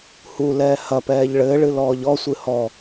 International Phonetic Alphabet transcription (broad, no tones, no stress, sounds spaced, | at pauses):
h u l ɛː h ɐ p ɛː ʎ ɭ ɘː ɭ ɨ l ɔː ʎ ɔ sʷ ɨ h ɔ